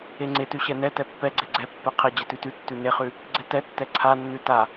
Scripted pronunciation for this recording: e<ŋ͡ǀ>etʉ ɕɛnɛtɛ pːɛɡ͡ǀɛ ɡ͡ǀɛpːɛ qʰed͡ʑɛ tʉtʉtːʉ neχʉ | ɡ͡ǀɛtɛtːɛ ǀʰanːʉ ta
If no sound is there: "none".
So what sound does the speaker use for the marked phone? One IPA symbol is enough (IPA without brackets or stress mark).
ŋ͡ǀ